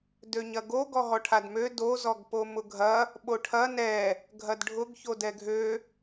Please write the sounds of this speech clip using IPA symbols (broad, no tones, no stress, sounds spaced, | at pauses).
d ø ɲ ɐ ɡ o ɡ ɔ ɦ ɔ ʈʰ a d m ø d o z ɔ ɡ p o m ʊ ɡʱ ɐ | ɓ o ʈʰ ɐ n ɛ | ɡʱ ɐ d ɖʱ ʊ ɡ ç o d ɛ ɡʱ ø